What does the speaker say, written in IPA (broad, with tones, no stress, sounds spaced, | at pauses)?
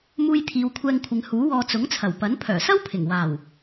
m uː˧ j t̪ʰ iː˨˧ w kʷʰ ɛː˧ ŋ kʷʰ ɪ˨˧ ŋ h uː˨˥ w ɔː˧ t͡s ʊ˨˥ ŋ t͡sʰ ɐ˨˩ w p ɐ˨˥ n pʰ œː˨˩ s ɐ˥ w pʰ ɪ˨˩ ŋ w aː˨˩ w